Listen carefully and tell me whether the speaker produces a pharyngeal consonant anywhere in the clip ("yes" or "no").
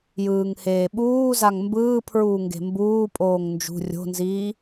no